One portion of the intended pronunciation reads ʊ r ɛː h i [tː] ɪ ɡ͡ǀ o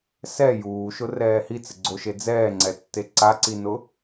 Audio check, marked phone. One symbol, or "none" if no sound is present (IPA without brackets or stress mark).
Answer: t͡s